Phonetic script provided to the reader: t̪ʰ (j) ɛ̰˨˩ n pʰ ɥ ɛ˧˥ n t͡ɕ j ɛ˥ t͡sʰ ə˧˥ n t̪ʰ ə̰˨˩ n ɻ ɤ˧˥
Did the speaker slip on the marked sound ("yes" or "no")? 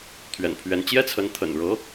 yes